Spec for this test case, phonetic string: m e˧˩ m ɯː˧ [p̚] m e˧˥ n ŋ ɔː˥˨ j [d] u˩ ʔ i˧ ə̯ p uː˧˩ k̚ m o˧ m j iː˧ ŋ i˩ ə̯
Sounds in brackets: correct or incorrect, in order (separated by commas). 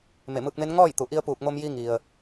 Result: incorrect, incorrect